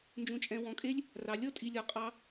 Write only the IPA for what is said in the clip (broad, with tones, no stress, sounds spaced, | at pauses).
n d͡ʒ ũ˧ t͡ʃʼ ɛ̃˧ w ɔ̃˧ kʼ e˦ lʲ | r ɑ˧ lʲ ɔ˦ tʼ i˧ lʲ ɔ˧ qʼ ɑ˦